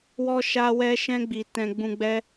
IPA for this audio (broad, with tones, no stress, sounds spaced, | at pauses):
w ɔ˧ ʃ a˧ w ɛ˧ ʃ ɛ̃˧ ɡ͡b i˨ t ɛ̃˨ ɡ͡b ũ˨ ɡ͡b ɛ˧